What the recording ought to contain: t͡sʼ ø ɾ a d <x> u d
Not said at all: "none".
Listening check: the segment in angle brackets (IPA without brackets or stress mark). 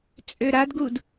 ɡ